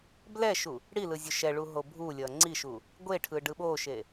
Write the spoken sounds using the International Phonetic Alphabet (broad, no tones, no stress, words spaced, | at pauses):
blɛʃu | ɽi lɯzʲoʃɛɭu ɦobʱulʲʌ ŋ͡ǀiʃu | ɡʷeʈʰɯ ɖɯɓoʃe